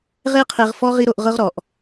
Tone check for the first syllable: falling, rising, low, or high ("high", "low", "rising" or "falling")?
high